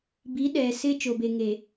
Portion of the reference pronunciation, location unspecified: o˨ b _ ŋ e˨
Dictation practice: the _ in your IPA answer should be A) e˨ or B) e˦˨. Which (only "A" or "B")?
A